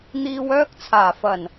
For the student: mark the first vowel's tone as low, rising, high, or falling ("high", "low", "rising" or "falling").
low